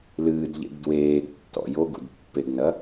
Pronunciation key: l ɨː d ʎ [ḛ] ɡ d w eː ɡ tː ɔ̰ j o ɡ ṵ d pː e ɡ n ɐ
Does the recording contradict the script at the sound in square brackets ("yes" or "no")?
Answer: no